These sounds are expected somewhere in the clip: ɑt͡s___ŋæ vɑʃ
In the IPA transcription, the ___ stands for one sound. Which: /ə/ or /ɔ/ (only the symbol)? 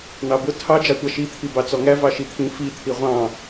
ɔ